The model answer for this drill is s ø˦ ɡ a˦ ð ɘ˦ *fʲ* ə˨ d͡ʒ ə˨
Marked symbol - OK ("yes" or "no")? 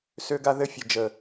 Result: yes